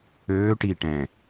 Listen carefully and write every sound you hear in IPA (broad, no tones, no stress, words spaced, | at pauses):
øː ʈi ʈɛ̃